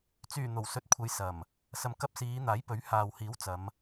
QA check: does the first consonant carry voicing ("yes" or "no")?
no